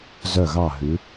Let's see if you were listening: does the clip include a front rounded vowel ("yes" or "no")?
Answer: yes